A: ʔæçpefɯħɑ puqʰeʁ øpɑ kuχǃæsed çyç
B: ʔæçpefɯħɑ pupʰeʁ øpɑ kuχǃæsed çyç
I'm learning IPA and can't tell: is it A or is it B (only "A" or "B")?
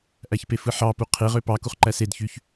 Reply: A